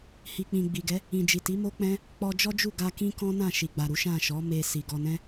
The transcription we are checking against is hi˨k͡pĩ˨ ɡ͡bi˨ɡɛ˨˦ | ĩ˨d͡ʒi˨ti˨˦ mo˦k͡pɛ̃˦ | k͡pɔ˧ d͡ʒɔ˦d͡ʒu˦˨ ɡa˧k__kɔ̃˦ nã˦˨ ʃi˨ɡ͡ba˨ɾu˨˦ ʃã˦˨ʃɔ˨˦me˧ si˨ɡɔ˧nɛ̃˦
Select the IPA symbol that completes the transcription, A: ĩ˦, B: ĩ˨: A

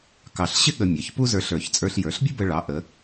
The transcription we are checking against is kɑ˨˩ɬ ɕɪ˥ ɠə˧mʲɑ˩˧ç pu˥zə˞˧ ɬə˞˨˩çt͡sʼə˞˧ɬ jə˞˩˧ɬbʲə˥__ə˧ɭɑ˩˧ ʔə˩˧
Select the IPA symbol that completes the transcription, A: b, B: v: A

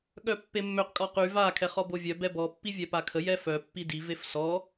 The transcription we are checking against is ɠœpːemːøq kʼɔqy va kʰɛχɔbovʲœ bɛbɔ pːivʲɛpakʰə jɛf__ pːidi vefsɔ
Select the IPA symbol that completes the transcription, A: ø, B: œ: B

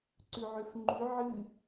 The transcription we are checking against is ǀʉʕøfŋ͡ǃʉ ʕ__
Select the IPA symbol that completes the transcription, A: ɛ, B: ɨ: B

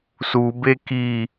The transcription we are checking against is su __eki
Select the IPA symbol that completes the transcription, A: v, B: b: B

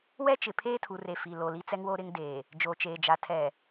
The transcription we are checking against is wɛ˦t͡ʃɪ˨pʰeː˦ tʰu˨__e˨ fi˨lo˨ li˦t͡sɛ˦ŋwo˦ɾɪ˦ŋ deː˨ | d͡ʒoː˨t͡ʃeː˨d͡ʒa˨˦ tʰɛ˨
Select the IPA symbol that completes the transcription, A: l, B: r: B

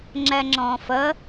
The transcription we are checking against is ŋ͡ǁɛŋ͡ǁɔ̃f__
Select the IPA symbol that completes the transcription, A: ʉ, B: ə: B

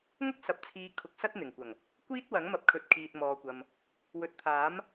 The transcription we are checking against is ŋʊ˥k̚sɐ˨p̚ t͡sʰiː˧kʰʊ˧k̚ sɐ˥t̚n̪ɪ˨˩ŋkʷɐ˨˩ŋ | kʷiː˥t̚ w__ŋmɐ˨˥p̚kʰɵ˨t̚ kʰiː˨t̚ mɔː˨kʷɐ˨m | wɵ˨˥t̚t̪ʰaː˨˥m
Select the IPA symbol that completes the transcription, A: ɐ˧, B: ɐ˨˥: B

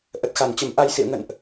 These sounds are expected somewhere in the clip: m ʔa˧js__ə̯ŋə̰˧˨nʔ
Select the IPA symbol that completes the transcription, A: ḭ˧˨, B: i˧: A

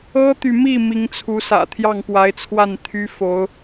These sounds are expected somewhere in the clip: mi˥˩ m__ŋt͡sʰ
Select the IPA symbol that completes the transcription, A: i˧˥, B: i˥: A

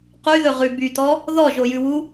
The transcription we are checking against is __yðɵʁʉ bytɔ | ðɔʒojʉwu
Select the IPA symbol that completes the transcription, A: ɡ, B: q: B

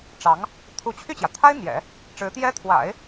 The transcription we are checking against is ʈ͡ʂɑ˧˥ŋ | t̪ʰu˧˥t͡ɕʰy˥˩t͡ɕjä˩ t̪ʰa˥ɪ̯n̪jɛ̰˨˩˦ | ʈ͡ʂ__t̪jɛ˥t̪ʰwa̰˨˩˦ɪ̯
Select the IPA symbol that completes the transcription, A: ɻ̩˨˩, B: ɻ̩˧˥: B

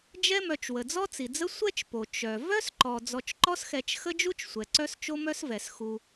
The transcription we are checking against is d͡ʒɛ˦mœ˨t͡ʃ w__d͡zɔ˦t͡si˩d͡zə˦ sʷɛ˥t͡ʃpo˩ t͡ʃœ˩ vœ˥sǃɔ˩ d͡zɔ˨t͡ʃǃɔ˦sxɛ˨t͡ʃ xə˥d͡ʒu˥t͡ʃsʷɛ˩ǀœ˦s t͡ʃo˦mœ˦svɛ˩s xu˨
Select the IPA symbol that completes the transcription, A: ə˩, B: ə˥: A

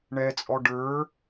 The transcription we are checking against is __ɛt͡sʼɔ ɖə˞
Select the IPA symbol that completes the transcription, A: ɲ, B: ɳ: B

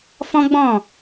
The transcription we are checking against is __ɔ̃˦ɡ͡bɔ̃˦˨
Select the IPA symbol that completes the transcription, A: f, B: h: A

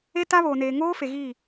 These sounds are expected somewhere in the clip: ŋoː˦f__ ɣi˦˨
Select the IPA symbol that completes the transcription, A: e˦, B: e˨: B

